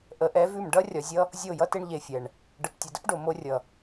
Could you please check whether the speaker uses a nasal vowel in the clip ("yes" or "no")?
no